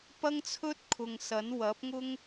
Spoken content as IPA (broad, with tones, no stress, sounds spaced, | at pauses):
p ɐ˥ ŋ t͡sʰ ɵ˥ t̚ kʰ ʊ˨ ŋ s ɐ˨˥ n w ɐ˨˥ p̚ ŋ ʊ˥ ŋ